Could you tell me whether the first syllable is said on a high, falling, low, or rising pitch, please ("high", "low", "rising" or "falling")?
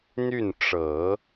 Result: falling